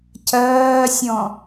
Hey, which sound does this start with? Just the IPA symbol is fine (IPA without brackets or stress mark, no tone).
cʰ